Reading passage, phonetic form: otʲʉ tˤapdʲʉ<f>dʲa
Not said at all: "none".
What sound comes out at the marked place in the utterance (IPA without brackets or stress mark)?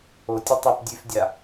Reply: f